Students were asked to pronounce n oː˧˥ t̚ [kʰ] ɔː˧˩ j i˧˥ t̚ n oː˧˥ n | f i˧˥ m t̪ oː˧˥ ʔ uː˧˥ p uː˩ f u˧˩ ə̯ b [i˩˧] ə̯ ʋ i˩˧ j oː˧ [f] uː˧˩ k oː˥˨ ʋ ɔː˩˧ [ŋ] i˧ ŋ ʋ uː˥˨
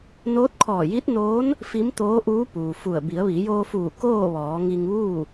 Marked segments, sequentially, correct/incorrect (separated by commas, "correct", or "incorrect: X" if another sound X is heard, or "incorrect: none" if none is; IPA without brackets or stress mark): correct, correct, correct, correct